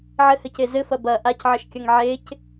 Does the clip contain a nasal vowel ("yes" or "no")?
no